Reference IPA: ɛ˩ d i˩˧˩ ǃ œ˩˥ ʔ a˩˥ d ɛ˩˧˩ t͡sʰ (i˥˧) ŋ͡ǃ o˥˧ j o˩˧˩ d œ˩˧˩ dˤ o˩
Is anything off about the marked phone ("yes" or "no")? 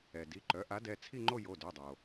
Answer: no